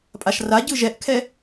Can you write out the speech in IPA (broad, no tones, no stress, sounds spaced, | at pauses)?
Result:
pʼ a ʃ r a ɟ ɯ ʒ ɛ ʔ kʰ ɛ